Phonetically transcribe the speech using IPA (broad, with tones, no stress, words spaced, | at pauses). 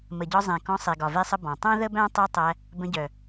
mə˨ɟɒ˧zˤẽ˨ kɔ̃˧sˤe˨ ɡɒ˨ve˧sˤə˧ bɔ̃˨ tˤœ̃˦ðə˦bæ̃˦ tˤe˦tˤæ˧ | bə̃˧ɟœ˨